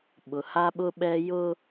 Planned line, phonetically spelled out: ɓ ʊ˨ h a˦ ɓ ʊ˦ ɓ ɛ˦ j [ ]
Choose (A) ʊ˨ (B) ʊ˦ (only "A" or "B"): B